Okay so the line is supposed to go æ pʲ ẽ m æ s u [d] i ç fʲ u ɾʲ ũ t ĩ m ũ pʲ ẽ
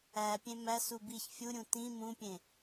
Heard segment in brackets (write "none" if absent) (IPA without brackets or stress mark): b